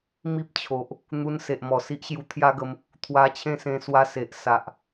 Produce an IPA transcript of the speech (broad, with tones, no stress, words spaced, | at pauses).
mi˦p̚t͡ɕʰo˨ʔ | n̪u˧nse˨ʔmɔ˨˩ si˦ʔɕju˧t̪ʰja˦ɡə˧m | t̪ʰwa˧t͡ɕʰẽ˥˧sẽ˧ swa˧se˨ʔ sa˨ʔ